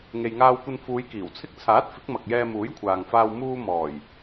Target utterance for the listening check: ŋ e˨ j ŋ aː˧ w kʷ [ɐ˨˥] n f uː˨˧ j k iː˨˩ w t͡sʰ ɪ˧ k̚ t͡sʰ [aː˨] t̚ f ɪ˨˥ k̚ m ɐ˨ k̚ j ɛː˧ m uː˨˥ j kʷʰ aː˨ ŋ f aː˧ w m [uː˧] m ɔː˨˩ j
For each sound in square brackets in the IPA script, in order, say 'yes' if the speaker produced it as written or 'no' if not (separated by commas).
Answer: no, no, yes